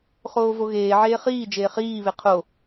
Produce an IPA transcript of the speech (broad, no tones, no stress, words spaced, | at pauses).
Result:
χoːvoɣeːʕeː χiː d͡ʒeːχiːβe qʰo